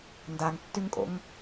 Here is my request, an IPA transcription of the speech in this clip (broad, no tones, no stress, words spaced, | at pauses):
ndaŋtːyŋkʼo̰ŋ